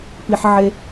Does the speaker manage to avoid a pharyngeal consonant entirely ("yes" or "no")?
no